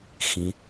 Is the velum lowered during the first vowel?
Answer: yes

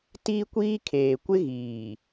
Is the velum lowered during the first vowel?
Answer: no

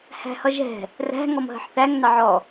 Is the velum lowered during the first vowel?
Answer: no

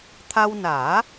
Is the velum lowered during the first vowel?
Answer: no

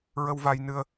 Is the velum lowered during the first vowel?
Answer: no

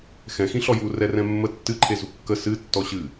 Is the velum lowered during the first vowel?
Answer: yes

